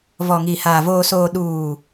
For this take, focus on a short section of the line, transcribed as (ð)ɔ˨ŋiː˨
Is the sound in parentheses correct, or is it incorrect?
incorrect